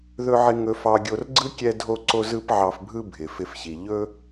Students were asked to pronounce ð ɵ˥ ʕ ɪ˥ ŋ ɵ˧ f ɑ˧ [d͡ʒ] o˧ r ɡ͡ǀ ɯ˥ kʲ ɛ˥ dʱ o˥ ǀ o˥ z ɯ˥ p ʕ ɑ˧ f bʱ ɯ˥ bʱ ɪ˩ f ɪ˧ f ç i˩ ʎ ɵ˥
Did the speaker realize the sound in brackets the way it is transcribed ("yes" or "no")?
no